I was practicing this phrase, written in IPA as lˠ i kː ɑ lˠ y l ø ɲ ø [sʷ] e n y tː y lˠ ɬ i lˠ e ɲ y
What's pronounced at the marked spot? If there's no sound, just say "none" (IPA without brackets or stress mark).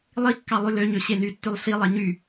ɕ